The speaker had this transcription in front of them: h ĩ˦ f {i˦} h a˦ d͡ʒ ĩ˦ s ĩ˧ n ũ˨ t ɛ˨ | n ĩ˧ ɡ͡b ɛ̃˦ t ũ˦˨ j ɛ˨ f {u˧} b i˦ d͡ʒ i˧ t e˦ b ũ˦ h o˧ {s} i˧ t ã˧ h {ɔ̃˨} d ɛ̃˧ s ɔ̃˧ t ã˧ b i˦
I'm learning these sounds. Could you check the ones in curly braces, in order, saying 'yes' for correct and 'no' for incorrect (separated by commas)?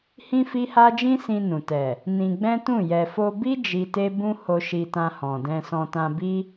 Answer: yes, no, no, yes